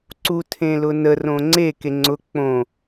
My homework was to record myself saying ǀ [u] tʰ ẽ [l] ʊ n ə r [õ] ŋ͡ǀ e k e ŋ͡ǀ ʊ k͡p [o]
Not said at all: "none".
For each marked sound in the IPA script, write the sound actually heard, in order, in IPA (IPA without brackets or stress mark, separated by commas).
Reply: u, l, õ, õ